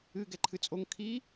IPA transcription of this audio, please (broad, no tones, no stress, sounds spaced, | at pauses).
ɨ ɡ ɛ ǃʰ ɨ t͡sʼ o ŋ kʰ i